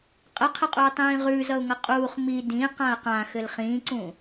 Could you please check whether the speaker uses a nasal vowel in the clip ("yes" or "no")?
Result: yes